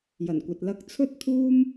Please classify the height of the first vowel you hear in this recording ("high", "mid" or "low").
low